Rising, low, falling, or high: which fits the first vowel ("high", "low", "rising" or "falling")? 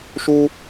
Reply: high